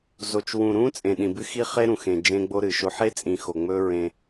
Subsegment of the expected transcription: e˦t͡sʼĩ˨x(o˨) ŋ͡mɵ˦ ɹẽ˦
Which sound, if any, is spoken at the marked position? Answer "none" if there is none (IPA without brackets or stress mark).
o˨